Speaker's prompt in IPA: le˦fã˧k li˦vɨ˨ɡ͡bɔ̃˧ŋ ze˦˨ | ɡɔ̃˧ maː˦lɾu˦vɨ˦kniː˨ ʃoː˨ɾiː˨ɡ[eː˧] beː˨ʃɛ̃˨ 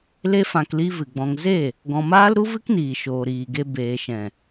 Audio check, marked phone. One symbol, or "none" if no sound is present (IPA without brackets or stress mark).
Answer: e˧